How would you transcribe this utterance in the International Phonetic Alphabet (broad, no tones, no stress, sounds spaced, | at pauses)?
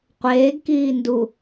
qʷ eː ɡ k iː n d u